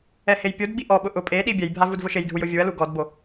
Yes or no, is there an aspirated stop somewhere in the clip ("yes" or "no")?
no